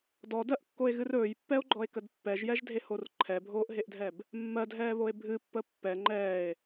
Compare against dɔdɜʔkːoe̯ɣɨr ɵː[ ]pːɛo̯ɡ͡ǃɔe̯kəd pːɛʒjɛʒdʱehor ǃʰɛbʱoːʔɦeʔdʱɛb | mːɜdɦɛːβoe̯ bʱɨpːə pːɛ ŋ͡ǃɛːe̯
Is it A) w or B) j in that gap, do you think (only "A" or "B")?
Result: B